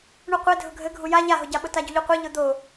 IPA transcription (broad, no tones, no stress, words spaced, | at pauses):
ɳuqʷe dʱʊɡʱɘ ɡʱuja ʎaɦʊɟaɓʊ taɟuʎuqʷɘ ʎʊd̪o